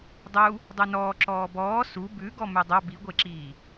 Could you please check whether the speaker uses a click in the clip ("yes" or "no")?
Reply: yes